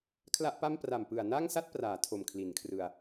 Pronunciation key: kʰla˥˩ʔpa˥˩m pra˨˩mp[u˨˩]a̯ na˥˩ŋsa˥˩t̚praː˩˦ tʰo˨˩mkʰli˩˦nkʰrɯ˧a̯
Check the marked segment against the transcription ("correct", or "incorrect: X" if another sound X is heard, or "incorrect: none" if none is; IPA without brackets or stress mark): incorrect: ɯ˨˩